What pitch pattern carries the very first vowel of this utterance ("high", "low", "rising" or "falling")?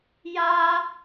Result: high